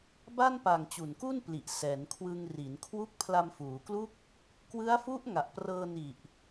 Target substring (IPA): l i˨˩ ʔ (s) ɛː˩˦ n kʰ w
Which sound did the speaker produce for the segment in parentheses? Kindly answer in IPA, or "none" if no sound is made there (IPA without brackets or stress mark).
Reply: s